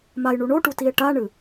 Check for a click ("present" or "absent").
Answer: absent